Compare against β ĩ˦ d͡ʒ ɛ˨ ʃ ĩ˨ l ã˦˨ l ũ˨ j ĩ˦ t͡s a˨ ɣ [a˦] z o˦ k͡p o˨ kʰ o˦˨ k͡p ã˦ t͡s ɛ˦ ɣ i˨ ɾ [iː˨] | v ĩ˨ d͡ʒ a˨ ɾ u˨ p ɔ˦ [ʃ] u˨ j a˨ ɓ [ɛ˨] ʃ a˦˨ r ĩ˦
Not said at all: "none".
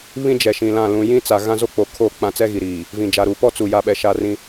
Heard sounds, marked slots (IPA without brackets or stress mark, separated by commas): ã˦, iː˨, t͡s, ɛ˨